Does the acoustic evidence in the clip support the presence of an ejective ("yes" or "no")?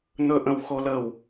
no